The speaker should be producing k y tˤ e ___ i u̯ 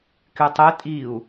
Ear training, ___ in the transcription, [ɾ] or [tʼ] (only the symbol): tʼ